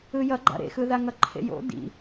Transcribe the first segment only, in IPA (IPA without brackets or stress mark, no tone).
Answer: ɯ